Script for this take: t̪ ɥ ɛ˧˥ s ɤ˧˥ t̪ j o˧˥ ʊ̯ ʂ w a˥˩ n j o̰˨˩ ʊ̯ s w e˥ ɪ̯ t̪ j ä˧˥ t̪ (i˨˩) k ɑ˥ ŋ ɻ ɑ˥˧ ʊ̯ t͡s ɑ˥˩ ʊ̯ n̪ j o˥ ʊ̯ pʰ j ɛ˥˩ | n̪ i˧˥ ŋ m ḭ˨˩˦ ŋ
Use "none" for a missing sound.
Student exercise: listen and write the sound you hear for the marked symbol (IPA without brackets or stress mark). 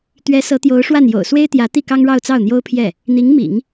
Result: i˥˩